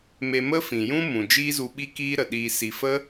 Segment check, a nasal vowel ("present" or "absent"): present